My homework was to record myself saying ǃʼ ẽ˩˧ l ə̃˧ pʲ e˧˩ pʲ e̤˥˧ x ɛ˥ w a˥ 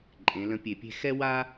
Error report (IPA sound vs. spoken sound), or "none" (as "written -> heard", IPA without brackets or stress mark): none